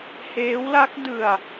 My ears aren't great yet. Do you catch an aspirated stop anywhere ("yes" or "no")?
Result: no